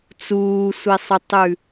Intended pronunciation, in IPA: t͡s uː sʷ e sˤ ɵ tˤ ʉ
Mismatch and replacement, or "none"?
none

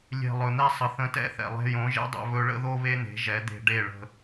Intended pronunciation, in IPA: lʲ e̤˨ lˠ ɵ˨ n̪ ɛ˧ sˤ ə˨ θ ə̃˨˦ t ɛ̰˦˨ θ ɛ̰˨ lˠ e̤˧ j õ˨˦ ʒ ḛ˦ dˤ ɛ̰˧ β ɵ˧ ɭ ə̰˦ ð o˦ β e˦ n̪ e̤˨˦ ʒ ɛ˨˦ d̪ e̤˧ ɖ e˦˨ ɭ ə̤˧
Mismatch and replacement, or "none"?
none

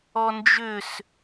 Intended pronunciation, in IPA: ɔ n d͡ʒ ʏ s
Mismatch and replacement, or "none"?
none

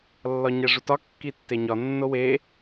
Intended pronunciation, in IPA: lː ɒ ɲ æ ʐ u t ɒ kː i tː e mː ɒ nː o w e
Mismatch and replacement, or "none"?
mː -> ɲ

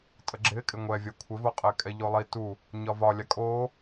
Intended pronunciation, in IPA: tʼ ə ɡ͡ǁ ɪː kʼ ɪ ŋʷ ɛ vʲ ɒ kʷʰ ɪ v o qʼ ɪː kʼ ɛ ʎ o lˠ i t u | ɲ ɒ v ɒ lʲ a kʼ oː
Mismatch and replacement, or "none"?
none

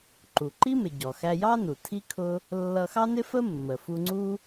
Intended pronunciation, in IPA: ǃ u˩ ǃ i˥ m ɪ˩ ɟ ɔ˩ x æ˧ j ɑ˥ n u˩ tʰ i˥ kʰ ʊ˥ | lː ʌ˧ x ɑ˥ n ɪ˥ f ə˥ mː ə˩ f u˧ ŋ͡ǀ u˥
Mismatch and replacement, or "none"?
none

